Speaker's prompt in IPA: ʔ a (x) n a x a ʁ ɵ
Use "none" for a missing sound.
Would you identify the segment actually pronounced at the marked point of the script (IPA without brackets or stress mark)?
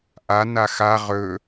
none